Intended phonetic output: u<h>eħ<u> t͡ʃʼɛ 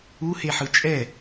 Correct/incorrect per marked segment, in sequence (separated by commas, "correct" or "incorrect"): correct, incorrect